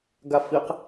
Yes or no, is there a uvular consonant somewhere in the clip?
yes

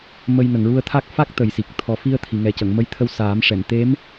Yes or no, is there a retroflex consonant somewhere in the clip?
yes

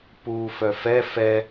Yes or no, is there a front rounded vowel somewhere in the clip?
yes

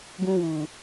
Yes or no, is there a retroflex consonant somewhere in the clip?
no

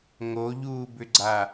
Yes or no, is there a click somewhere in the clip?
yes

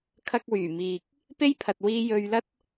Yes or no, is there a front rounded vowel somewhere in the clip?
yes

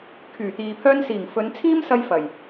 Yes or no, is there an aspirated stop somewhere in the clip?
yes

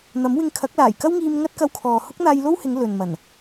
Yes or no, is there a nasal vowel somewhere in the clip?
no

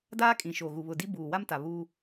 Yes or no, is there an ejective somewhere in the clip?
yes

